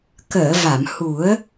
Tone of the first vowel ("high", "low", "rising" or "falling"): low